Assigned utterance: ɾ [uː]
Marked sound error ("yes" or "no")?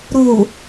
no